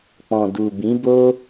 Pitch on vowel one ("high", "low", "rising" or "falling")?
low